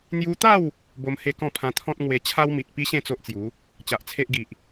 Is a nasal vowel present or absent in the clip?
present